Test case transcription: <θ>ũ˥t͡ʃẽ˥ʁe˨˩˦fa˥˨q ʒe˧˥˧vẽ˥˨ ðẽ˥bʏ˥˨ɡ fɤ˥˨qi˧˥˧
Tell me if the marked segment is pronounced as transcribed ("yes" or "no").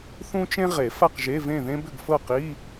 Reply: yes